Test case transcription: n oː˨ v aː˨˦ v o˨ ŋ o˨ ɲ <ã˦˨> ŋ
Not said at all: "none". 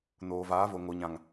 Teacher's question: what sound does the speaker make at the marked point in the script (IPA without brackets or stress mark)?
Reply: ã˨